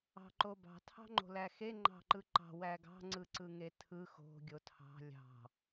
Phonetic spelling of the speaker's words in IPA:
ɑ̤ ǃ o b ɑ̤ tʰ ɑ̤ ŋ͡ǃ o̤ l æ x e ŋ͡ǃ ɑ̤ ǃ ɯ ǃ ɑ̤ w æ ɡ ɑ̤ ŋ͡ǀ ɯ ǀ ɯ ŋ e tʰ ɯ x o̤ ɡʲ o tʰ ɑ̤ lʲ ɑ̤

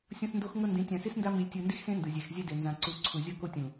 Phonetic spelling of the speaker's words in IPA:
sʲ õ˦ s n d o˦ x ŋ ɤ˦ n d ĩ˨˦ tʲ ã˨ s i˦ s n d a˦ m i˨ lʲ tʲ ɯ˨ n d i˦ x s ẽ˦ n d ɯ˨ zʲ ɛ˨ x zʲ ɛ˦ d e˨ n z ã˨ ǀ u˦˨ ǀʰ u˨ zʲ ɤ˦ k o˦ tʲ ũ˨

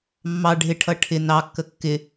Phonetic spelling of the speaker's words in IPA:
mː ɑ ɖʱ ɪ ʈʰ ʌ ʈʰ ɪ n ɑ kː ə kː ɪ

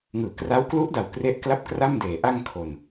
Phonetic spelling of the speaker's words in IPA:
ŋ ɯː˩˦ k r a˦˥ w k l u˦˥ ʔ d a˨˩ w k r e˦˥ ʔ k l a˥˩ p̚ k r a˥˩ m d eː˨˩ ʔ a˧ ŋ kʰ o˨˩ n

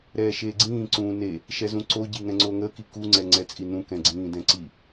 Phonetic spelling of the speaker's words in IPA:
ɾ ɛː ʃ eː ɡ͡ǀ ĩː ǀ ũː n e | ʃ ɛ z ũ ǀ o ɟ i ŋ ɛ̃ ŋ͡ǀ o ŋ ə k i k u ŋ͡ǀ ɛ ŋ͡ǀ ɛ t͡sʼ i n ũ k ɛ̃ ɡ͡ǀ ĩː d ɛ̃ ǀ i

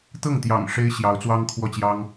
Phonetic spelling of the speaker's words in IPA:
t̪ ɤ˥˩ ŋ t̪ j ɑ̰˨˩ ŋ ʂ e˥ ɪ̯ ɕ j ɑ˧˥ ʊ̯ t͡s w ɑ˥ ŋ kʰ w ɔ˥˩ t͡ɕ j ɑ˥ ŋ

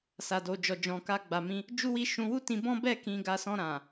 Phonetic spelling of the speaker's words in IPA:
s a˨ d o˨ d͡ʒ ɔ˨ d͡ʒ ɔ̃˨ k a˧ ɡ͡b a˨ m ĩ˧ | d͡ʒ u˦ w i˦ ʃ ũ˧ w u˦ t ĩ˧ b ɔ̃˦ b ɛ˦˨ k ĩ˨ ɡ a˨ s ɔ̃˧ ɾ ã˨

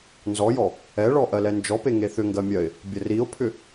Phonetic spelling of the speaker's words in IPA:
n z ɔ j ɔ | ɛ ɭ ɔ ʔ ɜ l ɛ n d͡ʒ ɔ p e ŋ e θ ʏ ŋ ɡ ɜ mʲ ɜ ɪ̯ | bʲ ə r i ʊ̯ pʰ ʏ

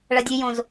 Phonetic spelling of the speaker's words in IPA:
ɭ ɐ dʲ ʉ j õ z

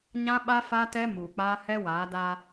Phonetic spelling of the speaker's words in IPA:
ɲ ã˦ ɓ a˦ f a˦ t ɛ˦ m uː˨ k͡p aː˦ h ɛ˦ w aː˨˦ d a˦

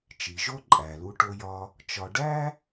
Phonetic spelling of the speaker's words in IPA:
t͡ʃ i˩ ʒ o˦ ǃʼ æ˩ l u˨ ʈ o˨ j ɒ˨ | t͡ʃ ɒ˨ ɖ æ˥

